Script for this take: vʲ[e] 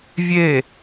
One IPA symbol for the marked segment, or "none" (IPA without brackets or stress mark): e